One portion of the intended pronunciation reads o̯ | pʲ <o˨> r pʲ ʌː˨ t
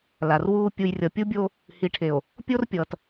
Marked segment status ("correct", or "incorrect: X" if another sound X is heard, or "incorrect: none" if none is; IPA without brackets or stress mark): incorrect: o˦